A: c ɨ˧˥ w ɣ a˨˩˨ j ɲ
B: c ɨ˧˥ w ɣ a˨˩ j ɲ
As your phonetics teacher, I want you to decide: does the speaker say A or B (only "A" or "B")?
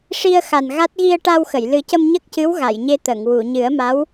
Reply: A